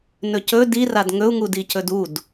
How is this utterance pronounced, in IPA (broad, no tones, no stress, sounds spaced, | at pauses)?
n ɵ c ɵ d i r a d ŋ ɵ u̯ ŋ u d i c ɵ d u d